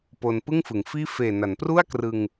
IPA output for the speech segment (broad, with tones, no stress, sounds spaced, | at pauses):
p o˧ n p ɯ˥˩ ŋ f ɯ˩˦ ŋ f iː˥˩ f eː˨˩ n a˩˦ n p r u˥˩ a̯ k r ɯ˧ ŋ